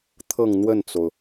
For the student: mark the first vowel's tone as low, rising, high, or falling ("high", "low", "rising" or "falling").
falling